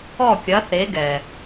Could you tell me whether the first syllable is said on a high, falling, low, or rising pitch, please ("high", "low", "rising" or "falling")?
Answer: falling